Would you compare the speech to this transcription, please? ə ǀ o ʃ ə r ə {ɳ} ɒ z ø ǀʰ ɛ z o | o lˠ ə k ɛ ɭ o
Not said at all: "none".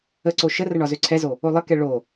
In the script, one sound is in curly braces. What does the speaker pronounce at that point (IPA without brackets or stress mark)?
ɳ